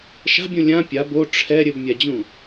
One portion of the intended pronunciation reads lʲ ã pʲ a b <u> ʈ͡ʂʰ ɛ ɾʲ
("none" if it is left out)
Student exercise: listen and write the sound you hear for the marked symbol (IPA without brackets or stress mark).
o